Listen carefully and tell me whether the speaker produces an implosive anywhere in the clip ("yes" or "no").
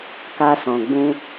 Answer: no